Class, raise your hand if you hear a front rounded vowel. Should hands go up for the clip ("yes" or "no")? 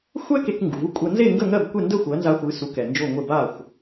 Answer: no